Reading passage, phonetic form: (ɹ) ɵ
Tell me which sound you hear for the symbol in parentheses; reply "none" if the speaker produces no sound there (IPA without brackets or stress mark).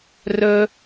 r